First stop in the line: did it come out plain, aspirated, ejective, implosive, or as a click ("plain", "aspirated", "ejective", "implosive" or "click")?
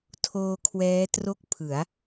aspirated